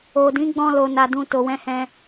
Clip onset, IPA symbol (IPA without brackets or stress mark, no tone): o